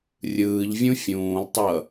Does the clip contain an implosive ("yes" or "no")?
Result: no